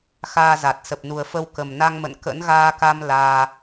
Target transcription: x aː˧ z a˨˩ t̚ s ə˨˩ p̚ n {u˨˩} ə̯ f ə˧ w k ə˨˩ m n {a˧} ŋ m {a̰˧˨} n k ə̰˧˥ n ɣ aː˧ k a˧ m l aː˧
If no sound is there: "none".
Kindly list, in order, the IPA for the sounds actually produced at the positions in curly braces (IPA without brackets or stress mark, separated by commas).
u˨˩, a˧, ə̰˧˨